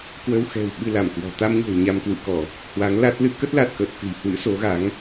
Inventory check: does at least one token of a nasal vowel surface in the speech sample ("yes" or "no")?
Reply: no